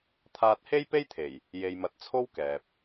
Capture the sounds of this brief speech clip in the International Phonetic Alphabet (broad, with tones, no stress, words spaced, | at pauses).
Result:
t̪ʰaː˧t̚he˥jpe˥jt̪ʰe˨˩j | je˨jmɐ˨t̚t͡sʰo˥w kɛː˨p̚